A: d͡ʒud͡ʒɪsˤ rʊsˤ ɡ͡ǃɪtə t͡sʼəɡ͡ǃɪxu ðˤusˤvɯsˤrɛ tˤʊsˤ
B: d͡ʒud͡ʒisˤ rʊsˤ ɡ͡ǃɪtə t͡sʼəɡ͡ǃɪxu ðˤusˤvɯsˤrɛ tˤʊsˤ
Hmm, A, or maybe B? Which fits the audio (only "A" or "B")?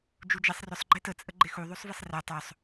B